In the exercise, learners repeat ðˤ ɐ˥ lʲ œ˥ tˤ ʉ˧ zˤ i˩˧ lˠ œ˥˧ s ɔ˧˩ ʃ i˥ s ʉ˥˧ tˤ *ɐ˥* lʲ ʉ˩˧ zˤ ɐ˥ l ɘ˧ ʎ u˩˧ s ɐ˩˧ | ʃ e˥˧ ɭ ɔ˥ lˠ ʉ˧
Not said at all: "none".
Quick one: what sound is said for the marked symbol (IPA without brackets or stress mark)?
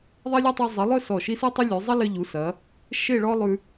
ɐ˥